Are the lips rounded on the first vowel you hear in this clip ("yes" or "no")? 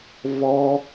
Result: yes